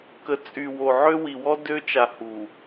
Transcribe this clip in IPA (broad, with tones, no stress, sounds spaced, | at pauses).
k ə˨ t͡sʼ y˨ w o˨ ʕ ø˦ w i˨ w ɔ˦ d ø˦ t͡ʃ a˨ h u˨